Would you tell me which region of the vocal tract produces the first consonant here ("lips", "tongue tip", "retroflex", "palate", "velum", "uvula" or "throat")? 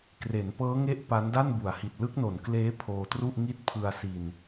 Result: velum